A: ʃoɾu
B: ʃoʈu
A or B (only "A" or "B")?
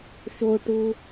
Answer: B